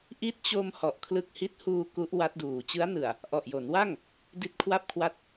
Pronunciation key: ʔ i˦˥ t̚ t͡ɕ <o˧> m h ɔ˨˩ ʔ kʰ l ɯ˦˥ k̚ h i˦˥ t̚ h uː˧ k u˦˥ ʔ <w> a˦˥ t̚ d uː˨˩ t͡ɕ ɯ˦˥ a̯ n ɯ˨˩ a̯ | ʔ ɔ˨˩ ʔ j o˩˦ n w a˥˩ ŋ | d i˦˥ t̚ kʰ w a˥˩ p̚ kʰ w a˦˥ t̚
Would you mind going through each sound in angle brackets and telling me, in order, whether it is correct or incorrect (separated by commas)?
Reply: correct, correct